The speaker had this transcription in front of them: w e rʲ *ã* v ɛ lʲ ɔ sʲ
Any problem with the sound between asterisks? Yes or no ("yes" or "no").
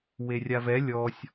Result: yes